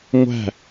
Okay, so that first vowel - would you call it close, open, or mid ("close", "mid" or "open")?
open